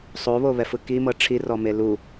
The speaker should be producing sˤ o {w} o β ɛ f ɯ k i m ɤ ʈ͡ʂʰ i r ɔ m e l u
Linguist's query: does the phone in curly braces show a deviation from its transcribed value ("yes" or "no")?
yes